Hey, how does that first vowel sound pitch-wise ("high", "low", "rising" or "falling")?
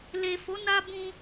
low